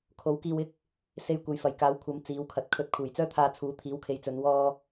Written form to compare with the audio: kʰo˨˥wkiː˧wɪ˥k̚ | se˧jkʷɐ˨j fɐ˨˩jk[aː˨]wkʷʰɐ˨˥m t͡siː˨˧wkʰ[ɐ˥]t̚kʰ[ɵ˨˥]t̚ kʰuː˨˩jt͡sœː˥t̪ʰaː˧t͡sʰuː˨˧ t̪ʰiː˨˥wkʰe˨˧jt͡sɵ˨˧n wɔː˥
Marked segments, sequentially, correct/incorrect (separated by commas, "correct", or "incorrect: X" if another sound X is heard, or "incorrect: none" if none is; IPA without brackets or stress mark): incorrect: aː˨˥, incorrect: ɐ˨, incorrect: ɵ˧